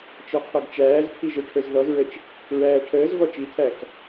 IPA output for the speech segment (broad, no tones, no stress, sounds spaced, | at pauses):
t͡ʃ ɔ qʰ ɔ ɡ t͡ʃ æː z pʰ i ʒ ə˞ ʈʰ ə˞ z ð ɔ z ɹ ə t͡ʃ | ɹ æː ʈʰ əː z v ɔ t͡ʃ i tʰ æ k